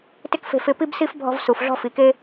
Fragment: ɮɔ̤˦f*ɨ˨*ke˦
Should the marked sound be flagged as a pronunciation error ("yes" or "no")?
yes